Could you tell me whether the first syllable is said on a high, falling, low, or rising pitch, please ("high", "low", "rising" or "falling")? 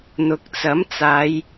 rising